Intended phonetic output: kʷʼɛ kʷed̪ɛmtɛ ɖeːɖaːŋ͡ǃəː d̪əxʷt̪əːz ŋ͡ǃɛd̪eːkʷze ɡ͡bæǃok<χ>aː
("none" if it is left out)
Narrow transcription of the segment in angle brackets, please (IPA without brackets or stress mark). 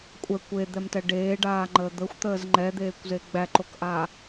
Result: ʔ